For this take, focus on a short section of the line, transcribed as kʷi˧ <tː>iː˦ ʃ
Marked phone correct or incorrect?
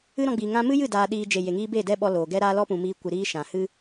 incorrect